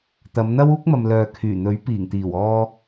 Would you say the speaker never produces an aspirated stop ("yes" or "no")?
no